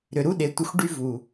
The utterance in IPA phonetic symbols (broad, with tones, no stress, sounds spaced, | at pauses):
ɾ ʏ˨ ɾ u˦ ɗ e˨ tʷ ə˧ xʷ ɖ y˦ v u˨